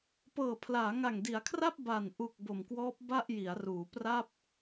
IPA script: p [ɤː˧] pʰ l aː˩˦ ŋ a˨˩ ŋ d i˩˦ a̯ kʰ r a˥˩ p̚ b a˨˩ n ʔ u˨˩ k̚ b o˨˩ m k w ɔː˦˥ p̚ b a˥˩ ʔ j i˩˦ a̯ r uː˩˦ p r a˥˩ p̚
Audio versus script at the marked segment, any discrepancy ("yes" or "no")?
yes